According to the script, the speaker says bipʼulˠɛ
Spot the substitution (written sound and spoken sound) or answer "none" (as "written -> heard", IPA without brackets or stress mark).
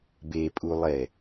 i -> e